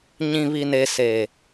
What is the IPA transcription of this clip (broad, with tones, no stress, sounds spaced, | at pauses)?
ɲ ĩ˨ β i˨ n e˨ s e˨